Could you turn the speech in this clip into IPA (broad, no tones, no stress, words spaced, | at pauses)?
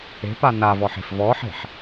e̤ panavɔħe̤f vɔħe̤ħ